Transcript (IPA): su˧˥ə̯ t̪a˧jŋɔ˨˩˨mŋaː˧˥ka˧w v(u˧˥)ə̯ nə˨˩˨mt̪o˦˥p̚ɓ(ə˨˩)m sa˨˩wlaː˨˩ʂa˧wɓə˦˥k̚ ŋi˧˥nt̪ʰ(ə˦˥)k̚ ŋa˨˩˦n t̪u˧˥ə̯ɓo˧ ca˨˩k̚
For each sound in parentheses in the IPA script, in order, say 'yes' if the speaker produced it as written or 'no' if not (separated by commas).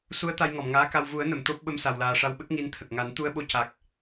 no, no, no